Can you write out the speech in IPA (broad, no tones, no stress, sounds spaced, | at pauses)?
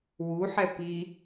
w u ħ ɛ p i